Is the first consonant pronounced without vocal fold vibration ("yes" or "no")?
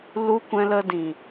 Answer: no